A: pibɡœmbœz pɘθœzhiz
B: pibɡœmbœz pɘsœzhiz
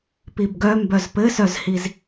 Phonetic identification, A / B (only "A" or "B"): B